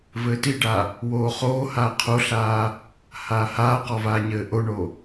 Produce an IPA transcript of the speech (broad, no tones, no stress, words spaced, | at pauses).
vɘːtiɖa | woːχoːhaː qʰoɬaː | haːhaːqɔ vaːɲɘːʔoɳo